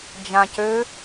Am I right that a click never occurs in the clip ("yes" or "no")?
yes